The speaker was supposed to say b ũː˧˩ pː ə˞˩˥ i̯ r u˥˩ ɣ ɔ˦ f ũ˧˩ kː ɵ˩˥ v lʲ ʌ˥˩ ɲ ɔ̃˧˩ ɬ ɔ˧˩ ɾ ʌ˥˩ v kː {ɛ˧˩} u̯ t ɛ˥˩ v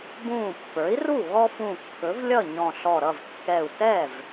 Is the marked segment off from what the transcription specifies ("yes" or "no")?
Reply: no